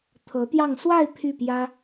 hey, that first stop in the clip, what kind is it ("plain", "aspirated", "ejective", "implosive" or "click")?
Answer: aspirated